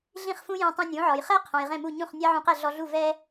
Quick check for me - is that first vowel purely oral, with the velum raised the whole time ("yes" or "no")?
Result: no